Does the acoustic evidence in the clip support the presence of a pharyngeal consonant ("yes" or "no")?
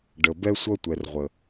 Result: no